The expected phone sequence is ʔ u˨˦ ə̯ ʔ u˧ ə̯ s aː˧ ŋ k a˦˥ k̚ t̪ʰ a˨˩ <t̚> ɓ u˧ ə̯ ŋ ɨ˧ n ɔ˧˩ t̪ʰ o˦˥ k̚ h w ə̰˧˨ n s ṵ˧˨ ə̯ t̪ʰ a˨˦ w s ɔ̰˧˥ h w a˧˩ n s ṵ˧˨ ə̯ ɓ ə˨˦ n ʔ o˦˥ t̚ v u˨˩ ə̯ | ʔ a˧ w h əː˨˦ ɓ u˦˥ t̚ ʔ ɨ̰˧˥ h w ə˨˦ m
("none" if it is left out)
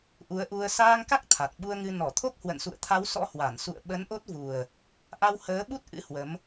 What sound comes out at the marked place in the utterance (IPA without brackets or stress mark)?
t̚